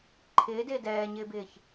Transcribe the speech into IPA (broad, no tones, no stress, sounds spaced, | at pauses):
ǃʰ ɪː d ɪː d ɛː ɲ ɪː b ɪː ç